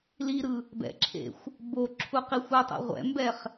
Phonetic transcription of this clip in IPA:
l i ɾ ɯ | b ɛ̰ ǁʰ ḛ xʷ | b o ǁʰ u q i xʷ u tˤ ḛ ʁʷ ɛ̰ m b ɛ χ

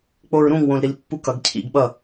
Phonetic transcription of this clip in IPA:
k͡p o ɹ ɾ ũ ŋ w õ l ɾ i l pː u k ʌ ɡ cʰ ḭ ɡ ɓ ʌ

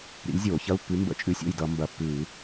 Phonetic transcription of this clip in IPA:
ɾ ḭ˨˥ lʲ zʲ oː˧˩˧ ç ɐ˧˥˧ u̯ pː ʉ˨˥ m b ə̰˧˥˧ t͡ʃʼ ʉ˨˥ sʲ o̰˥˩ j d ʌ˧˩˧ m b ɐ˧˩˧ pː ʉː˧˩˧

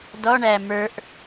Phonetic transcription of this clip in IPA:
d ɔ ɳ æ m ə˞ ʔ

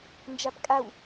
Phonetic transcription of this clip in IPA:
n d͡ʒ a p kʼ a w

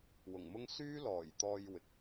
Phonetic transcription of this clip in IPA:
w ʊ˨˩ ŋ m ʊ˥ ŋ s yː˥ l ɔː˨˩ j t̪ ɔː˧ j w ɪ˨ k̚

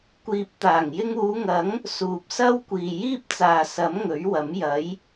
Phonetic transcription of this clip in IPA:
kʷ iː˨ p̚ t̪ aː˨˩ ŋ j ɪ˧ ŋ uː˨˧ ŋ ɐ˨˥ ŋ | s uː˨ p̚ s ɐ˥ w kʷ iː˨ j iː˥ p̚ t͡s aː˨ s ɐ˨˥ m ŋ ɵ˨˥ ɥ w ɐ˨˥ m j ɐ˨˥ j

